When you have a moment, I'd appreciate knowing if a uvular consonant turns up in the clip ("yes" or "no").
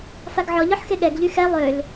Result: no